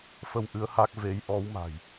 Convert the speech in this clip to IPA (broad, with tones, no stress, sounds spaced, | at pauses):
f ə˧ w ʔ ɨ˨˦ ə̯ h a˦˥ k̚ v e˨˦ j ʔ ɔ˨˦ w m a̤˨˩ j